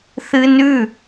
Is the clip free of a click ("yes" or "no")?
yes